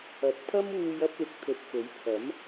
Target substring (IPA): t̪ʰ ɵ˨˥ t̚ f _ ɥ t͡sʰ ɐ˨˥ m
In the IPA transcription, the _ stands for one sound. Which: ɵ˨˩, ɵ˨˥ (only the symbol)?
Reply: ɵ˨˥